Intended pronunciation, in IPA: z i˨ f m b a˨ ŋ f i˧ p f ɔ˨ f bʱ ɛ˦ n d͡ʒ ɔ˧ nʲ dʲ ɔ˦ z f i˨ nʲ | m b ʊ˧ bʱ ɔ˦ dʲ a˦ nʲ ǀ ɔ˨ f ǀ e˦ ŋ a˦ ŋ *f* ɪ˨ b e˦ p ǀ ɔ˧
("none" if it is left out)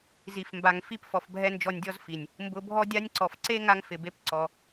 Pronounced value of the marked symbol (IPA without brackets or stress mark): f